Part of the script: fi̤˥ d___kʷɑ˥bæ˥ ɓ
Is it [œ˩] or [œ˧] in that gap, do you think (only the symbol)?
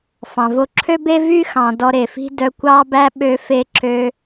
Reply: œ˧